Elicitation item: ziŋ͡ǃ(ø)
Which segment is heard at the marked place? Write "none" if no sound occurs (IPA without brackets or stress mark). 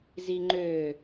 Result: ø